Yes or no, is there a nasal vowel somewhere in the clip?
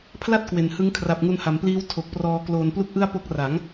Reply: no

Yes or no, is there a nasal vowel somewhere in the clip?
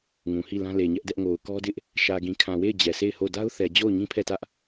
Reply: yes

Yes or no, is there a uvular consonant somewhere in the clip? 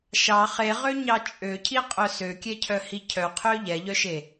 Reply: yes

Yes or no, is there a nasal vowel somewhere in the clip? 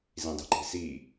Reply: yes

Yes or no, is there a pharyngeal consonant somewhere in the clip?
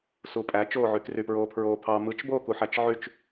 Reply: yes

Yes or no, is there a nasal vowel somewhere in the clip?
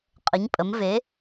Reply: no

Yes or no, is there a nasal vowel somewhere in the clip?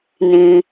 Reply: yes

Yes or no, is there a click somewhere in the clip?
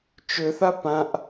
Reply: no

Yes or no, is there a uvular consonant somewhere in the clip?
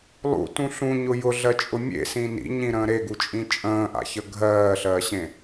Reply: no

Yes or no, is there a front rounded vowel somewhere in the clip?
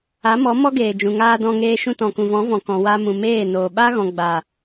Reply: no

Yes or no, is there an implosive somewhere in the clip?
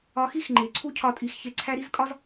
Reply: no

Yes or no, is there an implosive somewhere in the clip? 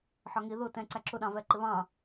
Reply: yes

